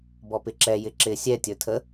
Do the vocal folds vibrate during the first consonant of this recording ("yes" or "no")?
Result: yes